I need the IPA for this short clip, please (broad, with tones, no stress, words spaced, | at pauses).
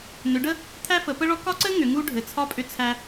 nʏ˨˦ɖə˥ | t̪ʰæ˥fə˨˦pə˥ɭɔ˥ kɒ˥ǀɘ˥ ŋʏ˨˦ŋu˥ ɖʱɘ˨˦t͡sʰɒ˥pʼʏ˥t͡sʰæ˥